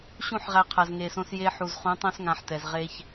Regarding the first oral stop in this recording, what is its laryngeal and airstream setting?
aspirated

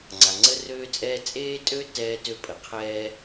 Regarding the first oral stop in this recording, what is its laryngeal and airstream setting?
click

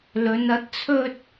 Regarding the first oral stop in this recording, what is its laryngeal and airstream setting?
plain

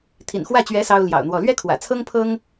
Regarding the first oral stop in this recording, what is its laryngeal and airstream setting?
aspirated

